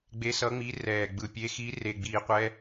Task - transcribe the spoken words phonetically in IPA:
ɡ͡b e˧˥ s ʌ˧˥ ŋ͡m i˧˥ r ɛː˨˩ ɡ͡b ɯ˨˩ pʲ e˧˥ x i˧˥ r e˨˩ ɡ͡b iː˨˩ qʷ ɛ˧˥

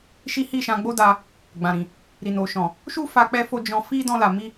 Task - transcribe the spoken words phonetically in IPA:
ʃ i˦ h i˦˨ ʃ ã˧ ɡ͡b o˦ d a˧ | ɡ͡b ã˨ ɾ ĩ˨ | ɾ i˨ n o˨ ʃ ɔ̃˨ | ʃ u˦ f a˧ k͡p ɛ˧ f o˧ d͡ʒ ɔ̃˧ f i˦ d ɔ̃˧ l a˨ m i˧

